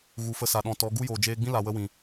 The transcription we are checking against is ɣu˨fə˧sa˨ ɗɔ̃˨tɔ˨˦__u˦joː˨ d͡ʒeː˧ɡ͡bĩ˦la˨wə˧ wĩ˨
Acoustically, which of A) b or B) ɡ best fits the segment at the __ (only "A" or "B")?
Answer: B